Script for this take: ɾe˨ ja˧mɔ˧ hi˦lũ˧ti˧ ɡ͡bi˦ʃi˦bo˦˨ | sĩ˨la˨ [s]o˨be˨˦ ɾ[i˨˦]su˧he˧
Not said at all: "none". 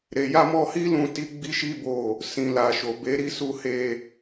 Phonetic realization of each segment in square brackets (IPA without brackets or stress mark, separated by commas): ʃ, i˧